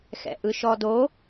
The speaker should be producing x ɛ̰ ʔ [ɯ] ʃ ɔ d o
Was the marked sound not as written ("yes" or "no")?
no